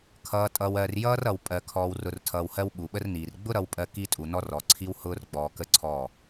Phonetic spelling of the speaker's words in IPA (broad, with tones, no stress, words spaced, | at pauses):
kʰʌː˨tʼʌ˨wɜ˨r jʌː˦rʌ˨w pʼɜ˨kʰɔː˨wrʊ˨r tʰʌː˨whɜ˦w ɓu˨ɓə˦rniː˨r ɡ͡bʊ˦ɾʌ˨wpʼɜ˨ ki˦tʼu˨nɔ˦r ɔ˨ǀʰi˦whʊː˦r ɡ͡bɔː˨kə˦ ǀʰɔ˦˨